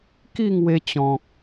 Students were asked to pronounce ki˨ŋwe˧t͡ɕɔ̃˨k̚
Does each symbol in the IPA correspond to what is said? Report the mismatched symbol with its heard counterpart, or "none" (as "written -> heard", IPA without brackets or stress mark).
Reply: i˨ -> i˥˧